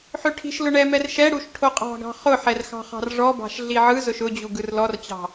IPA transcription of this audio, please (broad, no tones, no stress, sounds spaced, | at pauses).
ħ ø ʈʰ i̤ ʃ l ʊ ɳ ɛ m ɛ r ʃ ɛ ɽ u ʃ ʈʰ o qʼ ɑ̤ ɡ ɑ̤ χ ʊ ħ ɛ r x ɑ̤ χ ɑ̤ r ʐ ɔ b ɑ̤ ʃ ɮ i ʕ ɯ z ʊ ʃ ʊ d͡ʑ u ɡ ɯ r l ɔ r t͡ɕ ɑ̤